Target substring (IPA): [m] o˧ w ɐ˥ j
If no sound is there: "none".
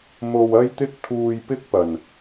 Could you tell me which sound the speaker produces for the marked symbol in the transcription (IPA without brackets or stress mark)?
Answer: m